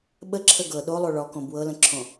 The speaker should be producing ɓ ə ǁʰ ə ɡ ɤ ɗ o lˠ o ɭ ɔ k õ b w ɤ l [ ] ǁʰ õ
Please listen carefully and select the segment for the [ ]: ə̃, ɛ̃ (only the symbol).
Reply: ə̃